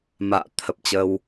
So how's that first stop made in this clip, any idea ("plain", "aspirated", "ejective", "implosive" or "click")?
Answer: aspirated